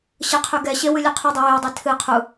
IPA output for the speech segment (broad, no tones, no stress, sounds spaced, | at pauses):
ɕ ə qʰ ø ɡ ɛ ɕ e w ɨ lʲ ɨ qʰ u dˤ ə w ø w dˤ e tʰ ɨ qʰ u